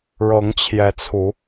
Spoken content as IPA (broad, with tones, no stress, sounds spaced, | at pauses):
ɻ ɤ˨˦ ŋ t͡ɕʰ j ɛ˨˦ t͡sʰ u˨˦